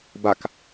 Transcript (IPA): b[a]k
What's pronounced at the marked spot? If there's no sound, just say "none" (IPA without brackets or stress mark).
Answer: a